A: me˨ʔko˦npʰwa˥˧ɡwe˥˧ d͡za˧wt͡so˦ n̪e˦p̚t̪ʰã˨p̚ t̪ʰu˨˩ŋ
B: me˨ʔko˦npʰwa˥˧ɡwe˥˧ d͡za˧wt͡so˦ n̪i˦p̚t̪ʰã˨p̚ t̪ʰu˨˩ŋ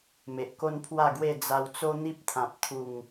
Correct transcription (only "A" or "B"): B